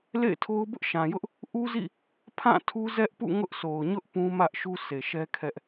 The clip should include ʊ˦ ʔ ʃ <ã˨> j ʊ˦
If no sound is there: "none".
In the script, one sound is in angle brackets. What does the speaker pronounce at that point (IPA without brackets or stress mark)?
ã˨